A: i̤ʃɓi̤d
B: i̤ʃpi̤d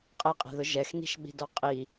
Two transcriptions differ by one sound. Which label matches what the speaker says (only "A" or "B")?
A